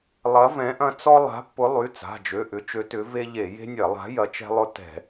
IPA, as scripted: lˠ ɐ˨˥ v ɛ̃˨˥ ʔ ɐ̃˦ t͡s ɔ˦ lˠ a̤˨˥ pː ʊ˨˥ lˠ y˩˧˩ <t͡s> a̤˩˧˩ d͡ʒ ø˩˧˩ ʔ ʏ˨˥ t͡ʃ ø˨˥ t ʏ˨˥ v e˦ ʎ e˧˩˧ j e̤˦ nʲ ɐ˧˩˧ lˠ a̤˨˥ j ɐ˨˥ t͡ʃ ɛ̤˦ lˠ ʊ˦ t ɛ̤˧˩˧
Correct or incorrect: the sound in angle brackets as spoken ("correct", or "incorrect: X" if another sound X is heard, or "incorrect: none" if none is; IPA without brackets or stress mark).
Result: correct